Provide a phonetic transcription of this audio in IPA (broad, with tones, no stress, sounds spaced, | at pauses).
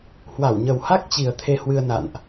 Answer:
h w a˧˩ w ɲ ə˨˩ w h a˦˥ k̚ t͡ɕ i˨˩ ə̯ t̪ʰ e˧ h w ɨ˧ ə̯ n a̰˧˨ n ʔ